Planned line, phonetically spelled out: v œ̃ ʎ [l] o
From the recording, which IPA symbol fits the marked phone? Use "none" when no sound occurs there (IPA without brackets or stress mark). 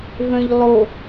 lˠ